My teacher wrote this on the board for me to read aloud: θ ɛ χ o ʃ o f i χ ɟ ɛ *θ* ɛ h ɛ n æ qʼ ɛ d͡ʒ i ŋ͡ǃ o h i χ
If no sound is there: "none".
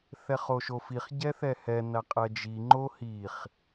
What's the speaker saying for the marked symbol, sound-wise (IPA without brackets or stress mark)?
θ